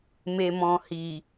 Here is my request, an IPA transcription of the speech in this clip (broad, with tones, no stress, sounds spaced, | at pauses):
m e˨ m ɔ̃˨ h i˨